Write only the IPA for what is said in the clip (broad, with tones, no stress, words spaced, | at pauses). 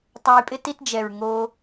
tˤa˧jpʼɪ˦ ti˧td͡ʒɛ˨ɹ ŋo˧